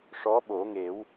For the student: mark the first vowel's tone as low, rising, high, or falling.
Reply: rising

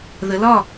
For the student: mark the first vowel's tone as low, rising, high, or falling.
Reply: rising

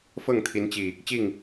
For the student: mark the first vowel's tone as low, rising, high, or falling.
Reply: falling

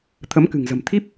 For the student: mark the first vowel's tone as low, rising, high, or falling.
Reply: rising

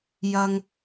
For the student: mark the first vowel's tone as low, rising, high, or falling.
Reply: high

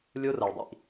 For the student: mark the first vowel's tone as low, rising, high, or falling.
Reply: high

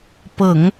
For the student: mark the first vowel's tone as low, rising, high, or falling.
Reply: low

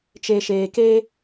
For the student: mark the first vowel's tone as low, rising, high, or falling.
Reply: low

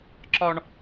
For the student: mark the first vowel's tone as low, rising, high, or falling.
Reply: high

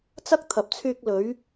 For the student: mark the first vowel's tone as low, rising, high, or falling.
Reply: high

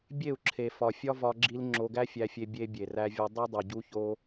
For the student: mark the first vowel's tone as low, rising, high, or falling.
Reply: falling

